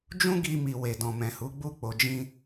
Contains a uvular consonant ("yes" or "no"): no